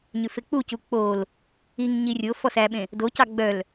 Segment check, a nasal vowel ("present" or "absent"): present